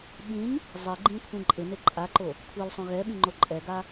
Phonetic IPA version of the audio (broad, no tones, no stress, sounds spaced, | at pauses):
ɓ ĩ ɲ | zˤ ɪ ɡ͡ǃ ĩ kʷʰ ĩ ǃʼ ɪ n e ǃʼ a ǃ o | kʷʰ ɛ l sˤ õ ɣ ɛ ɓ ĩ ŋ͡ǃ o ǃʼ ɛ ɡ a